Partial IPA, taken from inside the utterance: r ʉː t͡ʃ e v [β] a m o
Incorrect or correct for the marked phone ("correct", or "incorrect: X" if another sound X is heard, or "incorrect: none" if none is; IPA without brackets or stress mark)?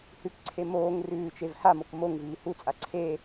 incorrect: h